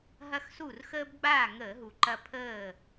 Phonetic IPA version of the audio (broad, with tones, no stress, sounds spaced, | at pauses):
ɦ ɐ˥ x s u˥˨ r x əː˥ b ɡ͡b aː˥˨ ŋ əː˧˩˧ ɦ u˨˩ ǃ ɐ˧ pʰ əː˥˨